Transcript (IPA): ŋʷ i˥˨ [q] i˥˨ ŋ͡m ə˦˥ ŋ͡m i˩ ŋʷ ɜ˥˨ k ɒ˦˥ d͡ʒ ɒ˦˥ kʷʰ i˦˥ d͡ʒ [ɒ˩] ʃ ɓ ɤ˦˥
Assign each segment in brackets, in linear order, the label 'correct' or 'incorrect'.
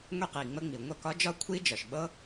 correct, correct

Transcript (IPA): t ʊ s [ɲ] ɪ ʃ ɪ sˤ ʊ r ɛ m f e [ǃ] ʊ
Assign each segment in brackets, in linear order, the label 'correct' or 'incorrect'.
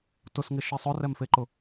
incorrect: ŋ, correct

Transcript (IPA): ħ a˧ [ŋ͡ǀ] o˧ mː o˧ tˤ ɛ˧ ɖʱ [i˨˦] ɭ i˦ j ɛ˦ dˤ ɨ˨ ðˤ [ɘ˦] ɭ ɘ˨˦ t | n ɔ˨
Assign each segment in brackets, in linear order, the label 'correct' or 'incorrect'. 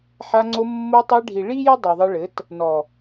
correct, incorrect: i˨, incorrect: ɘ˧

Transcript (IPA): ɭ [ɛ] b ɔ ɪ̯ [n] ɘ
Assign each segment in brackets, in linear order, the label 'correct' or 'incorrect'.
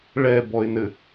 correct, correct

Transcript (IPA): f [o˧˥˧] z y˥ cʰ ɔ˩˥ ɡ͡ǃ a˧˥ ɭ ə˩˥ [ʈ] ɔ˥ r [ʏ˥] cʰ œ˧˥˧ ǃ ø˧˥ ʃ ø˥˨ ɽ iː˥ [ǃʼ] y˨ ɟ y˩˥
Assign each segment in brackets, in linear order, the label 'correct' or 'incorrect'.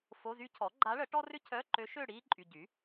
correct, correct, correct, correct

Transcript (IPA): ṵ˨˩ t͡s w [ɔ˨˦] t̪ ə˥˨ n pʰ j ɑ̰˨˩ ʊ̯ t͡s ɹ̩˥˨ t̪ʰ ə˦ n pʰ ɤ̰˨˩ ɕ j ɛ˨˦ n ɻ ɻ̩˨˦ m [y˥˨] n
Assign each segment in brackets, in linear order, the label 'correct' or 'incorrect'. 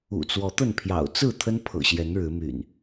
correct, incorrect: y̰˨˩

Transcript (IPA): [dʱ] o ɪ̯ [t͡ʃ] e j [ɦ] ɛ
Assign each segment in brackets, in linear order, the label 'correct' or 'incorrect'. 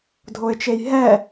correct, correct, correct

